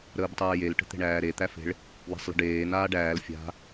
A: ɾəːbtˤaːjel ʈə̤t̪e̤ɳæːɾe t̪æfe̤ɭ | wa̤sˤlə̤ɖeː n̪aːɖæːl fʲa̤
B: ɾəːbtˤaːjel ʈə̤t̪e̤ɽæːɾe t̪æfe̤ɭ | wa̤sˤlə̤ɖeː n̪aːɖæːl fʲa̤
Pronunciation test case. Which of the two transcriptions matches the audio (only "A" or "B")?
A